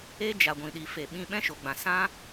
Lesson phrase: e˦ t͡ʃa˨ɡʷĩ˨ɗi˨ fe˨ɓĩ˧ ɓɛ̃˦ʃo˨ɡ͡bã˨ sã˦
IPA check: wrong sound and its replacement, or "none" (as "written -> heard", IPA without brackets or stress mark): t͡ʃ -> d͡ʒ